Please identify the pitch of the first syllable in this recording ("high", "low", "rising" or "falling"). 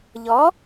rising